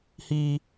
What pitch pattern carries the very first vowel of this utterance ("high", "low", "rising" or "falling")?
high